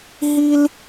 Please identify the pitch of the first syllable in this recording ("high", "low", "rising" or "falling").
high